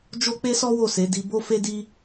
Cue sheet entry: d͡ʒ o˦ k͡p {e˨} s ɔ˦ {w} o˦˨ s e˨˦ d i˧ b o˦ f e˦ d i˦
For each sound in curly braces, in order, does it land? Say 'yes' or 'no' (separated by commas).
no, yes